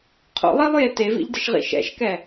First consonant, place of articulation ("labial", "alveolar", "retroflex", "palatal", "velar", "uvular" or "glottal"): uvular